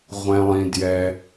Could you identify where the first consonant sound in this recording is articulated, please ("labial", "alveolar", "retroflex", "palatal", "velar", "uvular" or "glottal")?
uvular